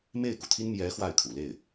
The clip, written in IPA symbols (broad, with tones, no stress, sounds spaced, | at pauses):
m e˥˩ ɪ̯ k u˩ t̪ʰ i˥ n m j ɛ˧˥ x w a˥˩ ɪ̯ kʰ ṵ˨˩ l e˥˩ ɪ̯